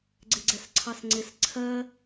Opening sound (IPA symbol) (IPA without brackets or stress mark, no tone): ɡ͡ǀ